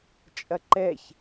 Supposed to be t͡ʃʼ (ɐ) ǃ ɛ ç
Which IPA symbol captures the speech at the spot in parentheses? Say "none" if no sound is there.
ɐ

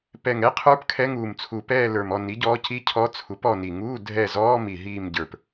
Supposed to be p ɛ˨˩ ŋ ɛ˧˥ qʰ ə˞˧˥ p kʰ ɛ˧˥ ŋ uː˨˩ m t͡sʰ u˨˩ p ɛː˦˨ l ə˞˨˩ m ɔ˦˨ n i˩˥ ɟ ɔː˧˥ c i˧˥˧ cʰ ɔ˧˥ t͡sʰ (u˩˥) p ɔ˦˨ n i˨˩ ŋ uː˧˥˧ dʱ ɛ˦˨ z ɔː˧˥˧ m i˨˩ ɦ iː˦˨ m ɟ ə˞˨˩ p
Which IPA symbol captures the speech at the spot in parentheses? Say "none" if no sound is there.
u˩˥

